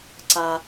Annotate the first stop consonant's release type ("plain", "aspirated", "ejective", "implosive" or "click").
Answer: click